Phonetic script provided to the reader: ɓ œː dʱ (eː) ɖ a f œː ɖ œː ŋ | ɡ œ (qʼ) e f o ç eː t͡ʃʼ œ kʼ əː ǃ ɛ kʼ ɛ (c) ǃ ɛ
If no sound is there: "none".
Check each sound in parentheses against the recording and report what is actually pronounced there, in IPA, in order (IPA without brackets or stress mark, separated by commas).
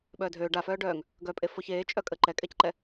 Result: øː, pʼ, c